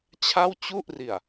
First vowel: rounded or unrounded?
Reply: unrounded